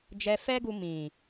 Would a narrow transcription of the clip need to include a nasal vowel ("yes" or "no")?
yes